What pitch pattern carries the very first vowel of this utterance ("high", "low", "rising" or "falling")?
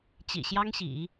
low